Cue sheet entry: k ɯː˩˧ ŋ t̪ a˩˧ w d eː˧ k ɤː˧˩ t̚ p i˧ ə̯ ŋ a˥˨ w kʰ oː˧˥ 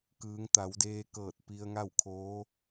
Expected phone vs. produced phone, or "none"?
none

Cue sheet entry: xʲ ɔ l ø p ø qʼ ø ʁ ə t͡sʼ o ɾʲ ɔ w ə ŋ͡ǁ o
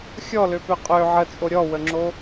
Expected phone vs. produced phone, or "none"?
ʁ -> ʕ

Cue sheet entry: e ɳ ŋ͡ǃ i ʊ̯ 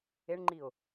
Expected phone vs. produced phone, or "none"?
none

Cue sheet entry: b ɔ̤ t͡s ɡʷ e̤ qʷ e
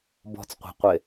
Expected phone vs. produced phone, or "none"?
ɡʷ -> qʷ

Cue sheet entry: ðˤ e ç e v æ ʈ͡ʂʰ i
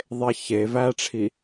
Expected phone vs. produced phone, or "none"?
none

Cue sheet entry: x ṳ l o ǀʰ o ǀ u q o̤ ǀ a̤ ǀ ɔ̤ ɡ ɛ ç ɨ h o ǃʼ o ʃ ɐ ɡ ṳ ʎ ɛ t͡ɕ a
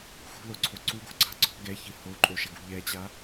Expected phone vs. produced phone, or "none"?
q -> ɡ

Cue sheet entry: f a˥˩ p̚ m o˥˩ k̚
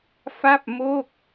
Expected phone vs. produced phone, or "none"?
none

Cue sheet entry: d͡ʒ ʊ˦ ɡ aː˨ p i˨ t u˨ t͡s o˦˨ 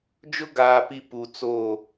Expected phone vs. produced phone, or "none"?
t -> p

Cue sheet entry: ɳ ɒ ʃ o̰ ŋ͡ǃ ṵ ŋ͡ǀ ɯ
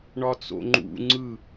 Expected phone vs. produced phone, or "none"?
ʃ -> t͡s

